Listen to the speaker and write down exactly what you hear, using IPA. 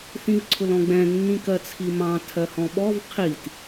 θĩvǀʰʊlɔ̃ɡ͡bɛ̃ nːĩkɜt͡sʰimɑ̃ tʰɜhɔ̃ɓɔv qʰit

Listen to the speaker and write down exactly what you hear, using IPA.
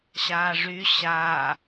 ɕaːʐy ɕaː

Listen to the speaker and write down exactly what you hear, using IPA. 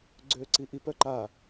ɡ͡ǀøːǀiʔip œǃa

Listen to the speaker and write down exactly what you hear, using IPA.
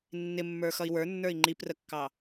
nːɪmːə˞ xʌi̯wə˞nːə˞i̯ ŋ͡ǃiprəkːɑ

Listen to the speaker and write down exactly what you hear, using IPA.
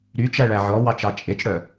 ɾyt͡ʃæɭæ ʕɔwɑt͡ʃɑ t͡ʃʼet͡ʃɽœ

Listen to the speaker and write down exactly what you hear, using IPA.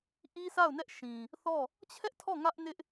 ʔi˦sa˦˨ʊ̯nɛ˦ʔ ʃĩ˨ | θɔ˦˨ | t͡ɕʰɛ˦ʔtʰɔ˦˨ ŋä˦ʔnɪ˦ʔ

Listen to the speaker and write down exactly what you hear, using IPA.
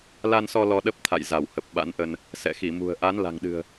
la˧nsɔ˧ lɔ˧ɗə˦˥p̚t̪ʰa̰˧˨j za˧˩whə˨˩p̚ ɓa̰˧˥nʔə˧n | sɛ̰˧˨xi˧˩mṳ˨˩ə̯ ʔa˨˦n la̤˨˩ŋɗɨ̤˨˩ə̯

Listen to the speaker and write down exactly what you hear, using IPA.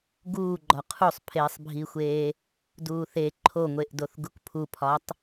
ɡuːɡ͡ǃɒ qʰusˤpʰeːsˤbʱiːxʷeː | duːθe ǃʰoŋʷeʔdoθ ɡukpʰupʰɒtˤ

